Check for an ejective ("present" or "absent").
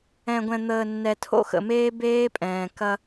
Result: present